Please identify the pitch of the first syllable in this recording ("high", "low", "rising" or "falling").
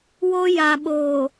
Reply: high